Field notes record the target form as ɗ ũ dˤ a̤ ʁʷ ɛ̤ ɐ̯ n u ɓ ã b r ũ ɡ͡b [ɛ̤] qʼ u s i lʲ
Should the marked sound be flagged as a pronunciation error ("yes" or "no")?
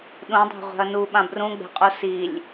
no